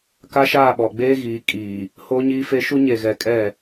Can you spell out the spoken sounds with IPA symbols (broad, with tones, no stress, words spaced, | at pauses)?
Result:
ka˦ʃaː˦˨ɓɔ˨ ɡ͡beː˦ɣiː˨ kʼiː˨ | hoː˦ɲiː˦fe˦ ʃu˦ɲe˨ ɣɛ˨kʼɛ˦˨